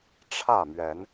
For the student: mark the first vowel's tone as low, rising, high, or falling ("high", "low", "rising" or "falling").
falling